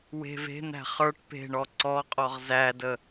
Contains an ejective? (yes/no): yes